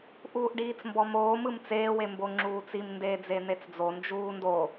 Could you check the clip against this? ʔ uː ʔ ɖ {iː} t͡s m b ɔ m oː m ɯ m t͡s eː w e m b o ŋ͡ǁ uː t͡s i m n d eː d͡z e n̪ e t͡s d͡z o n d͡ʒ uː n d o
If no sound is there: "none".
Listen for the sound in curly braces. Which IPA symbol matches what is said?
iː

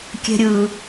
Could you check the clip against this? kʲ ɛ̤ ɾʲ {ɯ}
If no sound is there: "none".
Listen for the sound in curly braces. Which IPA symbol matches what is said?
ɯ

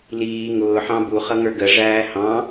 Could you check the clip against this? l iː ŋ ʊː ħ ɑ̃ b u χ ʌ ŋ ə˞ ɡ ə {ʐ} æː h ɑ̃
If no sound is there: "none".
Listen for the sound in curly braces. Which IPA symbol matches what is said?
ʐ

